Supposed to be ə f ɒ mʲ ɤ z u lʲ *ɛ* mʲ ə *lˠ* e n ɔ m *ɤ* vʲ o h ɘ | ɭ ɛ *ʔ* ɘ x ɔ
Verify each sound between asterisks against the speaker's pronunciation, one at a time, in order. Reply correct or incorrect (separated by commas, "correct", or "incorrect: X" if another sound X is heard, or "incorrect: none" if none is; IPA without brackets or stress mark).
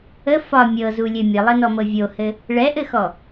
incorrect: ɘ, correct, correct, correct